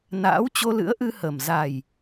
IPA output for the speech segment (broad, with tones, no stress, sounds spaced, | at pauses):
n a̰ː˧˥ w t͡ɕ o˧ l ɨ̰˧˥ ə̯ ʔ ɨ˧ h ə˨˩ m z a˨˩ j